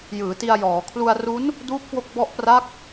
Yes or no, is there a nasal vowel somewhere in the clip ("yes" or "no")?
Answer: no